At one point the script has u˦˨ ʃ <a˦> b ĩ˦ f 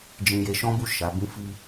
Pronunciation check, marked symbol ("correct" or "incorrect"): incorrect